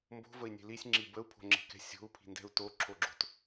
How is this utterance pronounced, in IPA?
m b o̤ v ə i̯ nʲ e̤ l i sʲ ŋ͡ǁ i b ə u̯ pʰ o̤ ŋ͡ǁ e̤ k ɛ̤ sʲ o̤ u̯ pʰ i̤ n d ɛ̤ u̯ t o ǁʰ o ɡ͡ǁ o̤ t

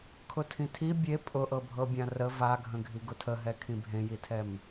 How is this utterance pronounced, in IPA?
kʰ ʊ tʰ ĩ tʰ i bʲ e pʼ ʊ ʔ ɤ bʱ ɤ bʲ ã r ə v a ɡʱ ə̃ ɡʱ i ɡ ʊ tʰ ə ɦ ɛ kʰ ĩ bʱ ẽ j i tʰ ɛ m

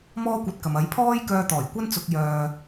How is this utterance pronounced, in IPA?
m ɔː˥ kʷ ɐ˧ t̚ k ɐ˨ m ɐ˨˥ j pʰ ɔː˥ j k œː˧ t̪ ɔː˨˩ j kʷ ɐ˥ n t͡s ʊ˨ k̚ j œː˨

